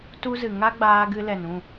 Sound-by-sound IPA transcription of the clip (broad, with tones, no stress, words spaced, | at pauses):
tu˦zɨ˨ ŋa˦ɡ͡baː˧ ɡɨ˧lɛ˨nũ˦˨